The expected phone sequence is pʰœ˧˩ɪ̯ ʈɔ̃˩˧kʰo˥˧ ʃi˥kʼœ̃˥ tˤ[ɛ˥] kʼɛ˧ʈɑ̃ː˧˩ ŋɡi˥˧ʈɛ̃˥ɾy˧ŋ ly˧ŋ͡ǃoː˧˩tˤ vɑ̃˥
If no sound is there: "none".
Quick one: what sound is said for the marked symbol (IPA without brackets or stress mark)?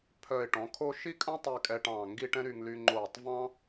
ɛ˥˧